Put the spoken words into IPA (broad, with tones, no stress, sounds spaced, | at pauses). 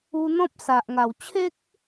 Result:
u˧ n̪ ɔ̃˦ p̚ s a˨ ʔ ŋ a˨˩ w t͡ɕʰ e˦ k̚